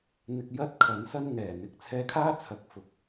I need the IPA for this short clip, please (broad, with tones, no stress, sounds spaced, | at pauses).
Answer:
n̪ ɪ˧ k̚ j ɐ˥ t̚ kʰ ɐ˨˥ n s ɐ˥ n ŋ ɛː˨˩ n̪ ɪ˨˥ k̚ t͡sʰ ɛː˧ kʰ aː˥ t͡sʰ ɐ˨˥ k̚ f ʊ˨˥ k̚